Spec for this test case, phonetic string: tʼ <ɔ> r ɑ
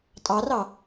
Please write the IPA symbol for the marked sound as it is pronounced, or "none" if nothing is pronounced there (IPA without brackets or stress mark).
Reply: ɑ